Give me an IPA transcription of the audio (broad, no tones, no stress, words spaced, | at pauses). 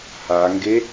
haŋɡe